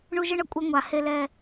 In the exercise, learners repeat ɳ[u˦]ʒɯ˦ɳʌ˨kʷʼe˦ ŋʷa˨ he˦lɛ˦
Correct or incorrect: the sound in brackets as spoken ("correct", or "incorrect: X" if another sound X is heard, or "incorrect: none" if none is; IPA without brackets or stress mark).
correct